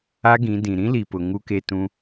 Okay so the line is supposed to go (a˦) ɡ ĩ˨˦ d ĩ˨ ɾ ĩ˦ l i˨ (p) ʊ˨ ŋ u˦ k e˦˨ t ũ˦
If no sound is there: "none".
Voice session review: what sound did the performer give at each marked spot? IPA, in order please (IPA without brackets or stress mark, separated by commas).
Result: a˦, p